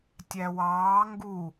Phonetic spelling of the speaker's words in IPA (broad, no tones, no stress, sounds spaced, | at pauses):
tʲ æ w ɑː ŋ ɡ u